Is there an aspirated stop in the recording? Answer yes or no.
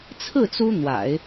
yes